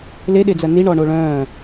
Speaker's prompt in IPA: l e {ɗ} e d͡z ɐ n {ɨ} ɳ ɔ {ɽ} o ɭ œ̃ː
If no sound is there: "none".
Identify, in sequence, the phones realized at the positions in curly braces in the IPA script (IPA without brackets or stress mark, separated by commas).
ɗ, i, ɳ